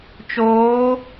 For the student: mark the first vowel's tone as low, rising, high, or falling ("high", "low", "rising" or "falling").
rising